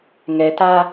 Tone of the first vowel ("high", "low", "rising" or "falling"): low